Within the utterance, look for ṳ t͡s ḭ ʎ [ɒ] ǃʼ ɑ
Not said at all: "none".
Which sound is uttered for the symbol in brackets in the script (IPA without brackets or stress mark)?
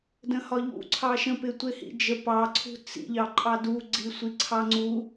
ɑ